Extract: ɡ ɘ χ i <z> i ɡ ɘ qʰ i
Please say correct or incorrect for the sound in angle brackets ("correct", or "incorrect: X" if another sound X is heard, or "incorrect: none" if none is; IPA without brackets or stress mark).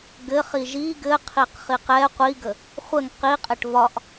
incorrect: ʒ